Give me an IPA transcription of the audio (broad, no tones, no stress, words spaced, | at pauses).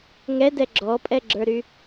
ŋɛdɛ ɡ͡ǁɔpʼɛɡ͡ǁə˞ɾy